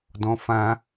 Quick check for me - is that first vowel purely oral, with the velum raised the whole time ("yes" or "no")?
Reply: no